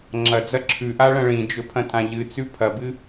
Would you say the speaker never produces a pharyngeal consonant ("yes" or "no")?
yes